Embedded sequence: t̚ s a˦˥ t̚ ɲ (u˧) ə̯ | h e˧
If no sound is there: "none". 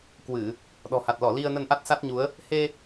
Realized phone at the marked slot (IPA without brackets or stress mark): u˨˦